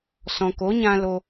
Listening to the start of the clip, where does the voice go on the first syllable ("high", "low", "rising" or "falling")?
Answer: low